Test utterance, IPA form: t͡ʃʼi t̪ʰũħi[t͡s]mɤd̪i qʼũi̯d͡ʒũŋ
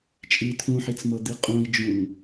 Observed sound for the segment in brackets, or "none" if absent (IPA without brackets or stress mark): t͡s